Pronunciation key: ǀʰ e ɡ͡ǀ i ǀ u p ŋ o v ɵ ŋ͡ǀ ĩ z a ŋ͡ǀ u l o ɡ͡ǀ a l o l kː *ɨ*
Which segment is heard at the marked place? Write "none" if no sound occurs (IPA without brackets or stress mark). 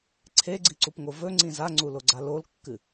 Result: ɨ